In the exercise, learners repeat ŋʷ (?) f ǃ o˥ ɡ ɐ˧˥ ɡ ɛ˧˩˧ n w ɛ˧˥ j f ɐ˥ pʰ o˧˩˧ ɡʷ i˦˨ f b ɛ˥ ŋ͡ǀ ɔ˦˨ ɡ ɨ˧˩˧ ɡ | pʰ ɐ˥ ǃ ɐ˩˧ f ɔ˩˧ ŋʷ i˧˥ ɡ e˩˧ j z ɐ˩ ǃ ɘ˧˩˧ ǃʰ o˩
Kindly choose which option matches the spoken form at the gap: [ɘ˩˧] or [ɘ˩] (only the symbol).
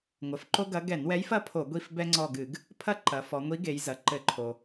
ɘ˩˧